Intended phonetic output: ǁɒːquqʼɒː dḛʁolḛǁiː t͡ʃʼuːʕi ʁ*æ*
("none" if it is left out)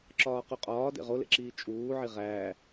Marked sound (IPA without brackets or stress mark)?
æː